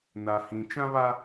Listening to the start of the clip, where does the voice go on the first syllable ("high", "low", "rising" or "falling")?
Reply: low